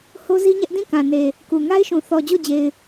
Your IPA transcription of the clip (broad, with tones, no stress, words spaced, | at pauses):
ho˦zi˦ɲɛ˦ʔ dĩ˦˨kã˨ ne˨ | ku˨ ŋa˦ɪ̯ʃũ˨ θɔ˨d͡ʑo˦˨d͡ʑe˨ɪ̯